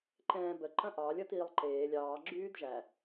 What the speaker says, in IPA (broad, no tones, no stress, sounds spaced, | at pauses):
ǃ ɛ̃ː b ə ǃ ɐ̃ ʔ ɑ lʲ ɐ t iː lˠ ǃ eː lʲ ɑː ɡ͡ǁ yː d ʒ æ